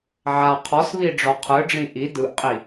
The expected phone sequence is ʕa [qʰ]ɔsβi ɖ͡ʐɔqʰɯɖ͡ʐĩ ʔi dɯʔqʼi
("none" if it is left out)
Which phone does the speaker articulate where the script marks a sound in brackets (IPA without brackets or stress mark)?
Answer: qʰ